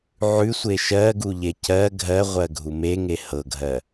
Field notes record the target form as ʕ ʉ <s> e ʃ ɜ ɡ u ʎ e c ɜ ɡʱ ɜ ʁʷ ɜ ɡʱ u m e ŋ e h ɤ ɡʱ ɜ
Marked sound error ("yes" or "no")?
yes